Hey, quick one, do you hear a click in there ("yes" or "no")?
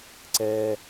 yes